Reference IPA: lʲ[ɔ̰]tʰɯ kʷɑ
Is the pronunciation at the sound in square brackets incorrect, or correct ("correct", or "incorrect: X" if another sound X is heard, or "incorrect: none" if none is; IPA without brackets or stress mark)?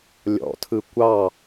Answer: correct